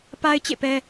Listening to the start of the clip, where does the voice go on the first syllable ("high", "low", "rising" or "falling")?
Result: high